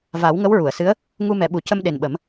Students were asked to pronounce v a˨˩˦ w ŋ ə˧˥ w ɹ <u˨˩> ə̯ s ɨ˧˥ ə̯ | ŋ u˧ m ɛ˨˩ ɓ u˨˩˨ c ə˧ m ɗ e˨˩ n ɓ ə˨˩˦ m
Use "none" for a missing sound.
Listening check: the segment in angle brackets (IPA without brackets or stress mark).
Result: u˨˩˨